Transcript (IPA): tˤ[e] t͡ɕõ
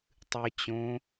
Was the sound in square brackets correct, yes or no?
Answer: no